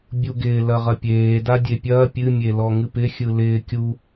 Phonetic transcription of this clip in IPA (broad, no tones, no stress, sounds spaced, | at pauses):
bʲ u ɡ ɪː l ɐ ʁ ɐ pʲ eː d a dʲ e pʲ ɐː pʲ ɨ mʲ e l ɔ ŋ ɨ p ɪ xʲ ɯ l ɪː kʲ u